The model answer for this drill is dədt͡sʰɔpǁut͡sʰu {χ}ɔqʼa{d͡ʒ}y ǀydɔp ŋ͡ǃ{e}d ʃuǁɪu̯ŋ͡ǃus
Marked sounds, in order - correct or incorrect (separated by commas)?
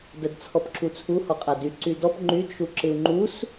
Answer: incorrect, incorrect, incorrect